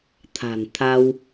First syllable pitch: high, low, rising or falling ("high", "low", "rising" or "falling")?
low